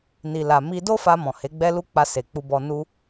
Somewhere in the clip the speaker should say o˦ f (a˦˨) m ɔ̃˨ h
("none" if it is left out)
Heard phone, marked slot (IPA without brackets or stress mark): a˧